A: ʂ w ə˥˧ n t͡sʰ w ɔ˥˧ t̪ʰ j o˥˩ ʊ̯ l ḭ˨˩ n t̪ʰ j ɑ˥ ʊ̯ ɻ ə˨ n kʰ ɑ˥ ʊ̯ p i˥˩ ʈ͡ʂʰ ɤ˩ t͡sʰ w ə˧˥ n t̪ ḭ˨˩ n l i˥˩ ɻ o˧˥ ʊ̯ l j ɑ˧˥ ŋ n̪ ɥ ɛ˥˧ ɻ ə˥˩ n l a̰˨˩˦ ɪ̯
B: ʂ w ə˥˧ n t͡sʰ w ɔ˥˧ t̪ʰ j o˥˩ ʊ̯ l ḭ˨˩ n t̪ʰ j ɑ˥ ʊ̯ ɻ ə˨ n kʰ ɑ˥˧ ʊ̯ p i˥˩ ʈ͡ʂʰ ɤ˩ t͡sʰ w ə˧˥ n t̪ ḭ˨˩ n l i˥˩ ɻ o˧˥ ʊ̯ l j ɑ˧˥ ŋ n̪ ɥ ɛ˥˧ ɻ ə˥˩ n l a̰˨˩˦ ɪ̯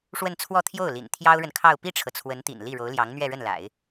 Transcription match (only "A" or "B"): B